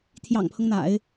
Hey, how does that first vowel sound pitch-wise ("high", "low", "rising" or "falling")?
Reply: low